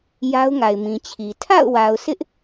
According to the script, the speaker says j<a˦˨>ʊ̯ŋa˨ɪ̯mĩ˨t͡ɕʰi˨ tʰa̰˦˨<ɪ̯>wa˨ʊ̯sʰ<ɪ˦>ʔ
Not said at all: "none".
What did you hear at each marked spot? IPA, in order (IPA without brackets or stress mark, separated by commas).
a˦, ʊ̯, ɪ˦